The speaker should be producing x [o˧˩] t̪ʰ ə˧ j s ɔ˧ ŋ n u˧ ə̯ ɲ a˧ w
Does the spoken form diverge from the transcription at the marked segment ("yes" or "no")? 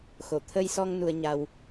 no